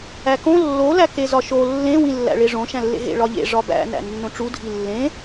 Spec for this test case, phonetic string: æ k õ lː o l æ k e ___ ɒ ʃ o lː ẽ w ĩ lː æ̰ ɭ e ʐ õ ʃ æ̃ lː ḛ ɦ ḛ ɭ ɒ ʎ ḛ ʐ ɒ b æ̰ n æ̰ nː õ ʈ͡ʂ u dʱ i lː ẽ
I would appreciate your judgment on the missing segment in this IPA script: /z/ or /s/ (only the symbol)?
z